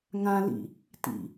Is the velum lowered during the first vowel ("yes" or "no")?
yes